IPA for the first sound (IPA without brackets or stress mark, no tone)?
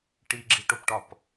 ʈ